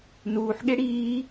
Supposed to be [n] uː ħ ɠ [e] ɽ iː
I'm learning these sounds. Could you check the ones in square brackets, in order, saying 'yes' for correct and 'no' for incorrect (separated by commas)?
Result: yes, yes